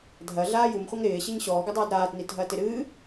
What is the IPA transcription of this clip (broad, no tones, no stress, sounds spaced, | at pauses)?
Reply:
dʱ ɐ ɮ aː j u m χʷ ɐ ŋ ɾ ɪː ɕ ɨ ɲ ɕ ɔː ɡ ɘ dˤ aː d ɾ aː t n i t ɦ ɐː t ɪ ɾ ɨː